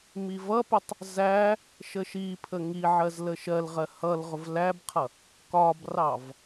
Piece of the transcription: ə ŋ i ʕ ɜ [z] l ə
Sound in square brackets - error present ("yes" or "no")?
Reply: no